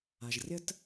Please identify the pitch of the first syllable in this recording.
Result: low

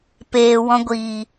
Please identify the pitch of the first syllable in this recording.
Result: low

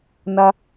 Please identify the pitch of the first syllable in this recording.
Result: high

